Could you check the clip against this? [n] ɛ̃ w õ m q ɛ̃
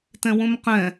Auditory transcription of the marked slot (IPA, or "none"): t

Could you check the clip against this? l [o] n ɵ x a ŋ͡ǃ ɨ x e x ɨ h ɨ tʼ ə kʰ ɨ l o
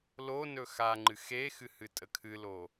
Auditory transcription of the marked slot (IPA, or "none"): o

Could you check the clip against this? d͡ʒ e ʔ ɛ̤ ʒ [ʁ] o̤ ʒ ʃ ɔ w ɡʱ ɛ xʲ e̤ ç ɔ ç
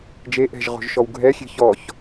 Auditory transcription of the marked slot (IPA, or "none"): ʁ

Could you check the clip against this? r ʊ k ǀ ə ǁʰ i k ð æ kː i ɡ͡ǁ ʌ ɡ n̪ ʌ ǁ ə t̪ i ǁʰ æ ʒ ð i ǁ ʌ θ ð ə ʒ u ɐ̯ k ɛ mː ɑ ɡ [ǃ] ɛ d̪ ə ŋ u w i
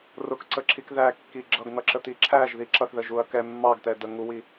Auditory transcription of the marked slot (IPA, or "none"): t̪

